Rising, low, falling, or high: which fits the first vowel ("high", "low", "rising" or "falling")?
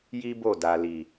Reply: high